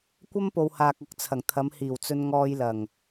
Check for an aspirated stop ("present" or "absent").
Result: present